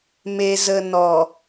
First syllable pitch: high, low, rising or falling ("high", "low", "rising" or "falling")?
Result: low